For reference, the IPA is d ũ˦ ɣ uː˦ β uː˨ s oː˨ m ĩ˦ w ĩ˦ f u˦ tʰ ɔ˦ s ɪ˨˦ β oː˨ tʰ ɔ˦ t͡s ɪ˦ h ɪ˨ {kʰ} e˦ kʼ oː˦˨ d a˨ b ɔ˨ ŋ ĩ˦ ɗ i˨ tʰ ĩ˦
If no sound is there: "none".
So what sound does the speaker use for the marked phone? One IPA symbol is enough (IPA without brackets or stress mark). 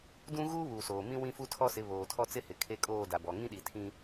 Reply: kʰ